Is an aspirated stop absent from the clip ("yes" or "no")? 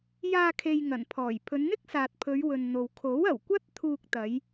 no